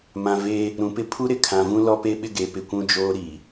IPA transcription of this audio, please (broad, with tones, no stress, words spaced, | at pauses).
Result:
mã˨veː˦ | ɾũ˨pɪ˦ pʰu˦ɾɪ˨ kʰã˨vũ˦ lɔ˦pe˦ɓɪ˦ɡe˨˦ pɪ˨kʷũ˦ d͡ʒoː˦ɾiː˨